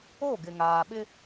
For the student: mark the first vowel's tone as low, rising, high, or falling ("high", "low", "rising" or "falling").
falling